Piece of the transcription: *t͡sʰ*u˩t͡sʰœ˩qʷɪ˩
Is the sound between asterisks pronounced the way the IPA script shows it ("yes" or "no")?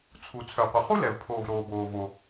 yes